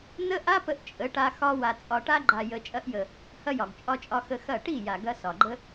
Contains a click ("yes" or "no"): yes